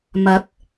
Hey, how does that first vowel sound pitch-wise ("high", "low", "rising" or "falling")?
rising